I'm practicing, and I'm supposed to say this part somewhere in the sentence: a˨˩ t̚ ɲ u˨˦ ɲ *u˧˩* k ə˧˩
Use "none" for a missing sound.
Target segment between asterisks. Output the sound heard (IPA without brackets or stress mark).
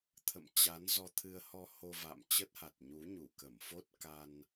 u˧˩